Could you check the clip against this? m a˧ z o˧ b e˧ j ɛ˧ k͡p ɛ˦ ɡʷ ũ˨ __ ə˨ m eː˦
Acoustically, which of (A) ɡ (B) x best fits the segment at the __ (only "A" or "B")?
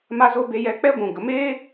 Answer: A